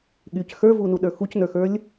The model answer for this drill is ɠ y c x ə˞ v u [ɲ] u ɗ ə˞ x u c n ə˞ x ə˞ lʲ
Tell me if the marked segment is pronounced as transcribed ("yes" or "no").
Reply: no